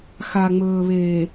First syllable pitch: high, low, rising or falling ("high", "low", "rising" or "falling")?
low